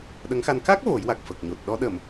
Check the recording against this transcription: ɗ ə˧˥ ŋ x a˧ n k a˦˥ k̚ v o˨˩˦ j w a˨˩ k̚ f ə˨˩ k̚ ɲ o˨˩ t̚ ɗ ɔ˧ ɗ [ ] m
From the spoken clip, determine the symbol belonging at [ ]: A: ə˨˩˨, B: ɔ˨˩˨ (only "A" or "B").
A